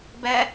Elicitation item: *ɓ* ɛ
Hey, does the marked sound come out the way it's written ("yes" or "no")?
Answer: no